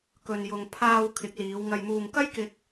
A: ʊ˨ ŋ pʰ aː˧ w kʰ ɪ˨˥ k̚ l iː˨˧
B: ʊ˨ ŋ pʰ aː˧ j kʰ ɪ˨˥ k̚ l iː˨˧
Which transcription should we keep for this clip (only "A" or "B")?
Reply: A